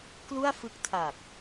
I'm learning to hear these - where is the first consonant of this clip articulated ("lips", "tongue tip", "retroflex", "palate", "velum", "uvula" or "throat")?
velum